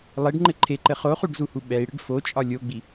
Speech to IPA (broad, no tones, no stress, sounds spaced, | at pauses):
lˠ e ɖ ŋ͡ǃ ɘ ǃʰ e ǃ ɘ χ o χ u ɖ z u h u ɓ ɛ i̯ ɽ ɘ ɖ f o t͡ʃʼ ɒ lʲ o ɡ͡b i